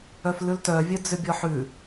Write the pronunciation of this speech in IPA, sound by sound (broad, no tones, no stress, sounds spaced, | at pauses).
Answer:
œ f l ʉ l t œ vʲ œ d͡z ʏ bʲ ɔ ħ ʉ